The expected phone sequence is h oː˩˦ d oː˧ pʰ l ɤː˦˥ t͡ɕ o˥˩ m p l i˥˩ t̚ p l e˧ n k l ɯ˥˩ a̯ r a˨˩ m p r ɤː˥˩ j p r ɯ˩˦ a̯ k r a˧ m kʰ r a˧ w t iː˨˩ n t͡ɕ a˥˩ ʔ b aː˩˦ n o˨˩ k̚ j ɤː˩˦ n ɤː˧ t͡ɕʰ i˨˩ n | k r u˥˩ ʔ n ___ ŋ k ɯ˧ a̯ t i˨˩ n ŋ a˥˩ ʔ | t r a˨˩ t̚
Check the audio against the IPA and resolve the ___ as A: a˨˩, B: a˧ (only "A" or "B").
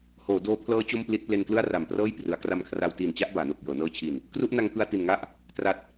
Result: B